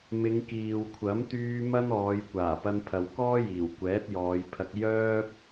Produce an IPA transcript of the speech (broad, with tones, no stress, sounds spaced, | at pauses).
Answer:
m ɪ˨˧ ŋ k iː˨ w kʷʰ ɐ˨˥ m t̪ yː˧ m ɐ˥ n ɔː˨˧ j kʷ aː˨˩ p ɐ˧ n pʰ ɐ˨ w k ɔː˥ j iː˨˩ w kʷ ɛː˨˥ t̚ j ɔː˨˧ j pʰ ɐ˧ k̚ j œː˥ p̚